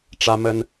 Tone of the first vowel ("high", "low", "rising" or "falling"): high